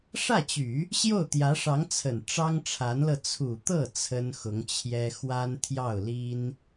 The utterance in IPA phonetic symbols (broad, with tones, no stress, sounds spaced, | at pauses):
ʂ ä˥˩ t͡ɕ y˨˩˦ | ɕ j o˥˩ ʊ̯ t̪ j ä˧˥ ʂ ɑ˧˥ ŋ t͡sʰ ə˨˩ n ʈ͡ʂ ɑ˥ ŋ ʈ͡ʂʰ a˧˥ n l ɤ˧ t͡sʰ u˨˩ t̪ ɤ˥˩ t͡sʰ ə˥ n x ʊ˧˥ ŋ t͡ɕʰ j ɛ˥ x w a˥ n t̪ʰ j ɑ˥˩ ʊ̯ l i˥ n